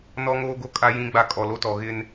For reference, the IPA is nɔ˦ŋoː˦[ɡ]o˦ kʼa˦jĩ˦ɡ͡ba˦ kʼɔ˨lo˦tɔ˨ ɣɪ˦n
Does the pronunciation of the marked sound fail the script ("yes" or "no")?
no